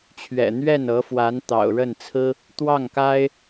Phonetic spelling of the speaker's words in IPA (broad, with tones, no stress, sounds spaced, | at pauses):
t͡ɕʰ ɥ ɛ̰˨˩ n̪ ɥ ɛ˥˩ n ɤ˧˥ f w a˧˥ n t̪ ɑ̰˨˩ ʊ̯ ɻ ə˥˩ n t͡sʰ ɹ̩˥ | t̪ w ɑ˥˩ ŋ k a˥ ɪ̯